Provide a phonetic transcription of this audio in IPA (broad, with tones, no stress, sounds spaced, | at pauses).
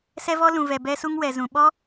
s ɛ˦ v ɔ˦ l ũ˨ v ɛ˨ b ɛ˦ s u˦ ŋ w ɛ˨ z ũ˨ ɓ ɔ˦